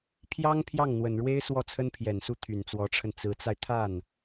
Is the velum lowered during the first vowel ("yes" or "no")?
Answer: no